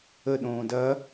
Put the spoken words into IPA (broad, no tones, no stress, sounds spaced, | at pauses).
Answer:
ə ɗ õː d ɐ